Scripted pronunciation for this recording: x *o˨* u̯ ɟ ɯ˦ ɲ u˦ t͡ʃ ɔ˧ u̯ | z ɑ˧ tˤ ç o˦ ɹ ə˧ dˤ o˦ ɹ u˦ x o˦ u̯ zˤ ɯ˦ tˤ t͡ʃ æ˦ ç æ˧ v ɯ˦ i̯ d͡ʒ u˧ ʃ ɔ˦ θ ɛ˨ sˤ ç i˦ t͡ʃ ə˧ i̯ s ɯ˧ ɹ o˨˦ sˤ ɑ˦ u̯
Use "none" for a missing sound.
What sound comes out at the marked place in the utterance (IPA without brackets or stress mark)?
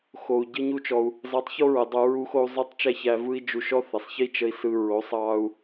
o˨